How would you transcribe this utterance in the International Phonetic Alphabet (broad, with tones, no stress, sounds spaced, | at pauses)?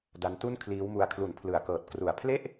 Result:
d a˦˥ n t u˥˩ n kʰ l iː˦˥ w m u˧ a̯ kʰ l u˨˩ n pʰ l ɯ˩˦ a̯ k ɤː˨˩ t̚ k r u˨˩ a̯ pʰ l e˥˩ ʔ